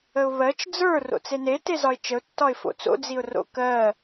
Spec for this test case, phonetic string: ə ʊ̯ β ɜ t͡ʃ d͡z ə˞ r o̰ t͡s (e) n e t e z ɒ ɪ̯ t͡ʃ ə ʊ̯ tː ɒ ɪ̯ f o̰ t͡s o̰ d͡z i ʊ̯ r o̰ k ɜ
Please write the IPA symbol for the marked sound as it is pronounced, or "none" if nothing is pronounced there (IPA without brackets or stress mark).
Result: e